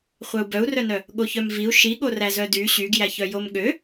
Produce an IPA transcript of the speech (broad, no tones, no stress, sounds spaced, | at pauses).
χʷ œ u̯ b œ u̯ r œ n œ | ɠ o ç œ m v i u̯ ʃ i ɠ o r æ z œ d y ɕ y ɡ j æ ç œ j o m ɠ ø